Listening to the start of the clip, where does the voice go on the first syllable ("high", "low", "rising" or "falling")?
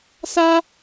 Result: high